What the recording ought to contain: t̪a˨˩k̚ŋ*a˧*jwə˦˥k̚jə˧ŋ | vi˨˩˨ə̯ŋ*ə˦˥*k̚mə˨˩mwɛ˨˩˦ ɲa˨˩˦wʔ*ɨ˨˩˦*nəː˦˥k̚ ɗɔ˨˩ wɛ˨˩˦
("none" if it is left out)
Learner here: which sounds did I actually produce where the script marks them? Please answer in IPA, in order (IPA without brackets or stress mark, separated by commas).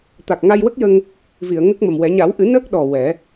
a˧, ə˦˥, ɨ˨˩˦